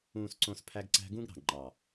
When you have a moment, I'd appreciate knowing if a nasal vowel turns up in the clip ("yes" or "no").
yes